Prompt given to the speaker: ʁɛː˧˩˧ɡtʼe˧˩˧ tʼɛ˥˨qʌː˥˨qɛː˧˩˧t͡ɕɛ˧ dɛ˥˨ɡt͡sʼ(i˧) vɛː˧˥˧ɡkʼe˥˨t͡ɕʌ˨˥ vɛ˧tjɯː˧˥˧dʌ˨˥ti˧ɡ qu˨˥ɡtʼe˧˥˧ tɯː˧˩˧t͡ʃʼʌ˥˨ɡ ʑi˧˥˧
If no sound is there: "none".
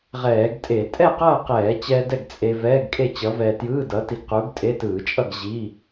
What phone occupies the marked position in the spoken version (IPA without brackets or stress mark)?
e˧